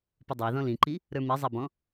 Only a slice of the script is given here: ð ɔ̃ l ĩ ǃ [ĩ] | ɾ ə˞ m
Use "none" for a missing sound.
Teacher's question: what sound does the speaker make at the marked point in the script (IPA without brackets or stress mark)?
i